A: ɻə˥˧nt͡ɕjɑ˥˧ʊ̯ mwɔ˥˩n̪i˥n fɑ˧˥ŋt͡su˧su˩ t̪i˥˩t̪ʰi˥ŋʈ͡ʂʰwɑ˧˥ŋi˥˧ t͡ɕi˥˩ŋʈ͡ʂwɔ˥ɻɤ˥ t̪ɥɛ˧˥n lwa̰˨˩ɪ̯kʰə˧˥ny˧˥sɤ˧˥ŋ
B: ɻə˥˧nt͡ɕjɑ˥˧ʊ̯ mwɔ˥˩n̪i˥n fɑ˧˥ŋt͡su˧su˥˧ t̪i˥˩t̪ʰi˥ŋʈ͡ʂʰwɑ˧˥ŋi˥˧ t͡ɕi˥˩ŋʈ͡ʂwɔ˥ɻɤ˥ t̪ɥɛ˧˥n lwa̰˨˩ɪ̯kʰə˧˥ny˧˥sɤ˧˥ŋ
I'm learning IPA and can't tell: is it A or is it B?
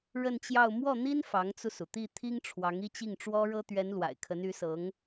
A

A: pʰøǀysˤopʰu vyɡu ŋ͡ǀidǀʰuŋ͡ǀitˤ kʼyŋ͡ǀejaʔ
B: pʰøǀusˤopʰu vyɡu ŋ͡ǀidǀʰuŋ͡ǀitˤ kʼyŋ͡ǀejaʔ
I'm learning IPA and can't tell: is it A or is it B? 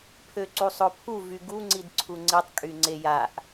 B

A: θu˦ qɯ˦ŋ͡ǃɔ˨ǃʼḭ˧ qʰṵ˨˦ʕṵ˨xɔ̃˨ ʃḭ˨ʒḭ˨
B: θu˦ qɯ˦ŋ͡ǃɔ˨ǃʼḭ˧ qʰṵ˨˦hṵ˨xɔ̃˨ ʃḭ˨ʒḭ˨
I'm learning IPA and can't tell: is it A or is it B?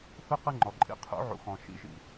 A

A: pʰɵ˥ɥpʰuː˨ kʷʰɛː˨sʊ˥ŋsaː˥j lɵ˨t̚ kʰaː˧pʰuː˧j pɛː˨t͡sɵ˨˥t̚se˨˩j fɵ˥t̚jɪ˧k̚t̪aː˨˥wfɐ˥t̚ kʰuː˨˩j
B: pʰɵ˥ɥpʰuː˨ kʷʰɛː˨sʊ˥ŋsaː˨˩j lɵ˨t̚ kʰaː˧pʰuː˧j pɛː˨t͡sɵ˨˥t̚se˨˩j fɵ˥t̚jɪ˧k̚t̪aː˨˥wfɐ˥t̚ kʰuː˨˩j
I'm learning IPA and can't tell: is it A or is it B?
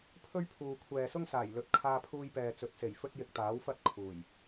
B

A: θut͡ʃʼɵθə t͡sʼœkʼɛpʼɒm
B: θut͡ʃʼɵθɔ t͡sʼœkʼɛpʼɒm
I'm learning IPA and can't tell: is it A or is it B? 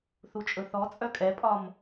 B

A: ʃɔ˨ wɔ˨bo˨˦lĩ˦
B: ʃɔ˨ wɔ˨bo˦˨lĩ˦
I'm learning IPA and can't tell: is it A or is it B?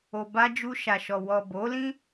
A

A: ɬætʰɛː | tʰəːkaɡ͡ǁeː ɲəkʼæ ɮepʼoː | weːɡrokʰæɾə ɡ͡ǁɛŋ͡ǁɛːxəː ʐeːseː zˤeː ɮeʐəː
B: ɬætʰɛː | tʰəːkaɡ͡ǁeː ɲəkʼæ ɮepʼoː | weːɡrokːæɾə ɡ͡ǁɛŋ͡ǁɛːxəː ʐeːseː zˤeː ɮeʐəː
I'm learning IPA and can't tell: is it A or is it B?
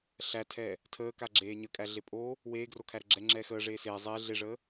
A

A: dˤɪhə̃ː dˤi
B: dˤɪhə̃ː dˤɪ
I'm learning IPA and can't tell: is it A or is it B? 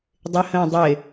B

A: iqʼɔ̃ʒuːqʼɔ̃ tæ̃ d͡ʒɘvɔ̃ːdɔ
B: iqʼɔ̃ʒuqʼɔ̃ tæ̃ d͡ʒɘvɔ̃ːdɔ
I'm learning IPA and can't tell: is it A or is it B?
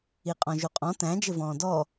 B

